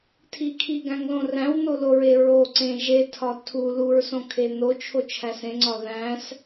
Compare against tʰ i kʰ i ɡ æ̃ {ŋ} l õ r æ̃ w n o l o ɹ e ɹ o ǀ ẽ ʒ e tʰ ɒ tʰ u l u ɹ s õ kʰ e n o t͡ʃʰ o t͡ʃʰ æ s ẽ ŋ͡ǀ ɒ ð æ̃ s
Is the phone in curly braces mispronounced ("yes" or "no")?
no